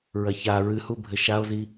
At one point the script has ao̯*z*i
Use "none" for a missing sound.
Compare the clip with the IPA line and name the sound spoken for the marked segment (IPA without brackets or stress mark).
z